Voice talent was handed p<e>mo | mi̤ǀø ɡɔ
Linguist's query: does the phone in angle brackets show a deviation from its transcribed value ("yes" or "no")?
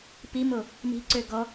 yes